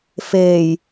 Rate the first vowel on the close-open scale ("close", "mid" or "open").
mid